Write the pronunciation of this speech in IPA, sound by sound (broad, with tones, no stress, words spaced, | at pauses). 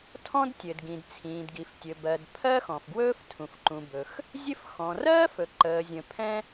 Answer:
tʰɔ̃˥dtʲɘ˩d ɡĩ˩dt͡sʰĩː˩dɡi˩ftʲɵ˩ bɜ˩d pʰɜ˥xɔ̃˩fɡwɵː˥ftʰũ˩f ǃũ˩bɵ˩x | zʲɘ˥f xɔ̃˩rɜː˥fɵ˩ ǃəː˩zʲə̃˩ pʰɛ̃˥